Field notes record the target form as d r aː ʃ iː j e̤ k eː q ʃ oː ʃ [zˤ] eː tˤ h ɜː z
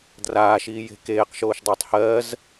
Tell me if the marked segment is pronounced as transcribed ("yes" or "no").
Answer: no